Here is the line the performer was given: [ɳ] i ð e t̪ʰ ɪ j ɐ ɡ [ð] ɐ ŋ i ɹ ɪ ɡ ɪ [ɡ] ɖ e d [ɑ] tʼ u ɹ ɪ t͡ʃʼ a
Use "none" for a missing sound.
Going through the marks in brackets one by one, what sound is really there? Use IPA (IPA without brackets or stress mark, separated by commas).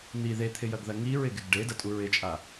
n̪, ð, ɡ, ɐ